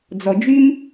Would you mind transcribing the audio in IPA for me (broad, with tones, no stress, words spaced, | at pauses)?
d͡zɔ˨ d͡ʒy˦m